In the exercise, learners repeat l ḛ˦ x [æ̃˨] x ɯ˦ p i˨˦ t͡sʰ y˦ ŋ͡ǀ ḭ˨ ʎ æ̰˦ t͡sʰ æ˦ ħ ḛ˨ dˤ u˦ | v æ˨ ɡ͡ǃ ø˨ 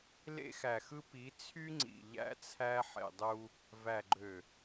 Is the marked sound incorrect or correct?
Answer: incorrect